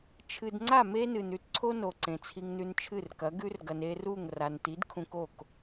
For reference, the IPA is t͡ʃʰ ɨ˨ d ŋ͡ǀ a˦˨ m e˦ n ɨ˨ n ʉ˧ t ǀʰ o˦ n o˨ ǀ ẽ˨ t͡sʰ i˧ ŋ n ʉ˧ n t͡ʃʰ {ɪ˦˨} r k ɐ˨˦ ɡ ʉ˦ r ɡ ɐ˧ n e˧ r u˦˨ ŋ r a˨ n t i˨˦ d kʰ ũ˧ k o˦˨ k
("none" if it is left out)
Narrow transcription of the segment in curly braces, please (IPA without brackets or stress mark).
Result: ɨ˦˨